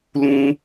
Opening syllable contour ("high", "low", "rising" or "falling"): high